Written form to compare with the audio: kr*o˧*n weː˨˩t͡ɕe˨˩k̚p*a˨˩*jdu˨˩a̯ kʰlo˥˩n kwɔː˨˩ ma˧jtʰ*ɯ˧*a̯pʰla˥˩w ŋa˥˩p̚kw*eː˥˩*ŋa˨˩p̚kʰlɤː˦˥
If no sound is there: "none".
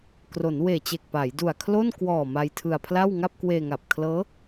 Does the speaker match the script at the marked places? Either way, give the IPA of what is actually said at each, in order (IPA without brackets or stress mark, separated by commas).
o˩˦, a˩˦, ɯ˧, eː˧